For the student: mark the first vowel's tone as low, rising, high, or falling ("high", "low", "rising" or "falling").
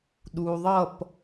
low